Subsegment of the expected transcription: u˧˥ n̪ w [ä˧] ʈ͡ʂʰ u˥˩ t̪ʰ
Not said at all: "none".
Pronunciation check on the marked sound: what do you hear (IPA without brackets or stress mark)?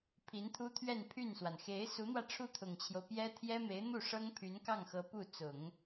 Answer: ä˧